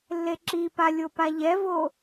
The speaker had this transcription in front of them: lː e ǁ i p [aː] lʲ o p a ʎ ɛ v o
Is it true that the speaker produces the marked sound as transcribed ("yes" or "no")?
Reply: no